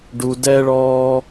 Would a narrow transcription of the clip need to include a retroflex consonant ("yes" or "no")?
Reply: yes